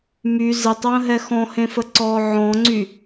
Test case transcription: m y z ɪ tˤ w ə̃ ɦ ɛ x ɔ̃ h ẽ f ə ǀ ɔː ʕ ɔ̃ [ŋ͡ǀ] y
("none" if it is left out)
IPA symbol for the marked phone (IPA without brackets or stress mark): ŋ͡ǀ